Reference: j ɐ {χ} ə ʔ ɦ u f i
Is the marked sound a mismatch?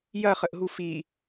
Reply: no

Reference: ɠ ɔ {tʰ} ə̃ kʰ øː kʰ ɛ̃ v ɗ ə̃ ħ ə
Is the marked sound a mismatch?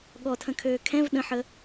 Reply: no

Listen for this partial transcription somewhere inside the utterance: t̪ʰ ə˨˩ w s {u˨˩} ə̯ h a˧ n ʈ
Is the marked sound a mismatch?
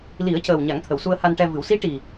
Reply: yes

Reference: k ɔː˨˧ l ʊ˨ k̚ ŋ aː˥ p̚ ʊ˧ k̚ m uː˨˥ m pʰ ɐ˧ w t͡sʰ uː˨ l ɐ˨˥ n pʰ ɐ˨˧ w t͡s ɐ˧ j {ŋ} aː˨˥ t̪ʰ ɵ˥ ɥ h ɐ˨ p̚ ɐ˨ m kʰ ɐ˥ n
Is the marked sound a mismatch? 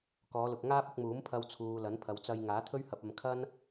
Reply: no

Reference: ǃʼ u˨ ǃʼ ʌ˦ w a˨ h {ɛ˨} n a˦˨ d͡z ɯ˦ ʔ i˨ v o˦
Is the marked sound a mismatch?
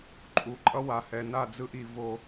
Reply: no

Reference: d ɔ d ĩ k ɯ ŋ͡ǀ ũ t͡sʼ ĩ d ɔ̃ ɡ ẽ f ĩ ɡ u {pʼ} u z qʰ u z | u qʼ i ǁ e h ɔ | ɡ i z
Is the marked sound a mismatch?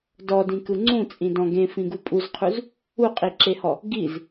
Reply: no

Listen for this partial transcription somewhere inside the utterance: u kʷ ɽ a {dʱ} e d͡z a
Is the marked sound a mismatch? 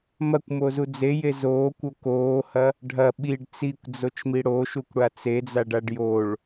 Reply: yes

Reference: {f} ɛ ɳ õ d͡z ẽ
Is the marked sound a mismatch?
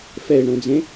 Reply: no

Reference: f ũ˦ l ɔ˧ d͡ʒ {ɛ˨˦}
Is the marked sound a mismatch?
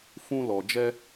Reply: yes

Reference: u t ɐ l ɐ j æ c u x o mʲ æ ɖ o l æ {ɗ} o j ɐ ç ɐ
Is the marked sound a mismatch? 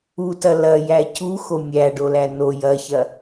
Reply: yes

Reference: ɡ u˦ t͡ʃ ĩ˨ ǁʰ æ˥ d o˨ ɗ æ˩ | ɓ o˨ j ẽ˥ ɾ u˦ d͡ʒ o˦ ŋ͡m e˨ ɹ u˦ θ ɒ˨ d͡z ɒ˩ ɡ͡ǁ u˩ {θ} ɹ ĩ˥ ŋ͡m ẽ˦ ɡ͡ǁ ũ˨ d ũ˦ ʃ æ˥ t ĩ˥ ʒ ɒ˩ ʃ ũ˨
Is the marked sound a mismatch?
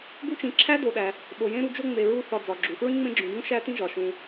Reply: yes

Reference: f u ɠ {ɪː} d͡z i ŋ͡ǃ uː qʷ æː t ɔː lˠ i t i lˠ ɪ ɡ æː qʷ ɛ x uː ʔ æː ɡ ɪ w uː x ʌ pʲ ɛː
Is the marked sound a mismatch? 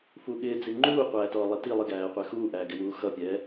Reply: no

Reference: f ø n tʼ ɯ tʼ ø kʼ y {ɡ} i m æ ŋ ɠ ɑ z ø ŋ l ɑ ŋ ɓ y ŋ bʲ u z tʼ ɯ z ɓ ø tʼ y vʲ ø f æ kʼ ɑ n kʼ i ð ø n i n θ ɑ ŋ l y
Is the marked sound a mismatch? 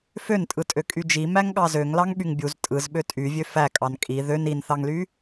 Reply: yes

